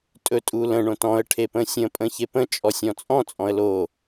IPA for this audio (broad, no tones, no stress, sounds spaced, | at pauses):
tʼ ɵ tʼ u l ə̃ ɳ õ t ɔ̃ ə̯ ʈʰ e p ə̃ sʲ ə̃ pʼ ə̃ ç e p ə̃ t͡ʃʼ ɔ sʲ ɔ̃ t͡sʼ ɔ̃ t͡sʼ ɔ̃ ə̯ l o